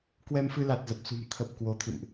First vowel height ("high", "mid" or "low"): mid